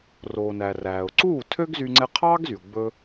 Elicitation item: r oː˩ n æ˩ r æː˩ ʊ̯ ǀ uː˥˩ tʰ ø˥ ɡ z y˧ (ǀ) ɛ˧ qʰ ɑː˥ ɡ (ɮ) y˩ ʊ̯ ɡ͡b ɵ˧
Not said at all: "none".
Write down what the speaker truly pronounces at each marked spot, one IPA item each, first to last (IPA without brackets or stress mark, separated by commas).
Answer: ŋ͡ǀ, z